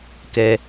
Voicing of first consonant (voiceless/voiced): voiceless